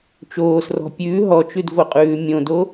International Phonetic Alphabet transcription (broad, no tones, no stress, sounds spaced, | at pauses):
t͡ʃ oː s r ɔ̤ pʲ ʉː ɦ ɔ t͡ʃ ʉ d v o qʼ ʉː mʲ õ d o